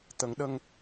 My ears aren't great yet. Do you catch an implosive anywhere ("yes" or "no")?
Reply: yes